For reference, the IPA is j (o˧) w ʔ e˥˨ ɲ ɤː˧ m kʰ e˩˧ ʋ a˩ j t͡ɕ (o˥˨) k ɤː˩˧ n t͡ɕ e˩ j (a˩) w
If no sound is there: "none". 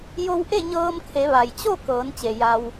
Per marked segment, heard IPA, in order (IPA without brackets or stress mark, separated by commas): o˧, o˥˨, a˩